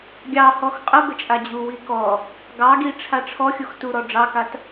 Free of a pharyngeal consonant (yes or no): yes